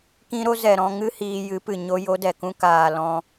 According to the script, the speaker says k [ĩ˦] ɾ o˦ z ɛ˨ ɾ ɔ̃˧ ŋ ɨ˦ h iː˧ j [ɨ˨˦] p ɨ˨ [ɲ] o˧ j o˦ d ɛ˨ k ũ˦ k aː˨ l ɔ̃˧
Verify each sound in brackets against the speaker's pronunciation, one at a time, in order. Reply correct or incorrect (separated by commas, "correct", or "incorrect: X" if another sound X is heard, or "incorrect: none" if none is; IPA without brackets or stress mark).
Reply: correct, correct, correct